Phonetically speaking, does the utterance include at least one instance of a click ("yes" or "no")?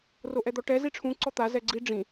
yes